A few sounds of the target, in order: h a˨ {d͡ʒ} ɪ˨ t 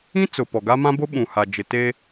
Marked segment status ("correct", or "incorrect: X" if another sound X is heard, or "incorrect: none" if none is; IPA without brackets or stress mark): correct